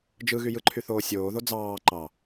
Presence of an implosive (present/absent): absent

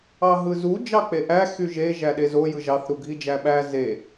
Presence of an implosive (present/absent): present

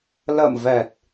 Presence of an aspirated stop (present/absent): absent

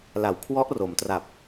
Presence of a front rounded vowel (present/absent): absent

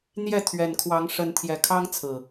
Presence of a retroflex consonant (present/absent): present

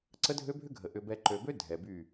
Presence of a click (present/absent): present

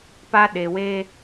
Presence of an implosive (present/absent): present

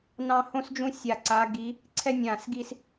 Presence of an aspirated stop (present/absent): present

